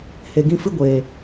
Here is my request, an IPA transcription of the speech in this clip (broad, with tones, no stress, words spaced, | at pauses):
he˨ɡĩ˧fɨ˦ ɡʷeː˨